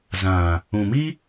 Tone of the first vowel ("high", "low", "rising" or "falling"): low